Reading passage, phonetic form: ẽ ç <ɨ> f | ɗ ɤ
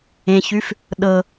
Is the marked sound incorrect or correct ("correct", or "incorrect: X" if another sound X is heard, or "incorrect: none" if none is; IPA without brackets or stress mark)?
incorrect: ʉ